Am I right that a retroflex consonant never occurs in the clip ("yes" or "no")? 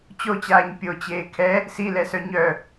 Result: yes